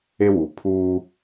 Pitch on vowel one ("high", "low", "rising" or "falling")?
high